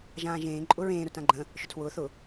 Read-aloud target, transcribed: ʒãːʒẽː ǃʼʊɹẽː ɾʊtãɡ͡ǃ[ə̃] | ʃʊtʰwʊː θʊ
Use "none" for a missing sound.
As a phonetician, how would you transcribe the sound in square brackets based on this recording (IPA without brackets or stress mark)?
ə̃